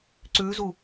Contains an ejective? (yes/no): no